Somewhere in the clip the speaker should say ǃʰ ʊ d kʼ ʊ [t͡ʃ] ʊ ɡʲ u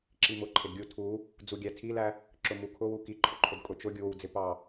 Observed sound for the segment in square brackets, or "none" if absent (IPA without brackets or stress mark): t͡ʃ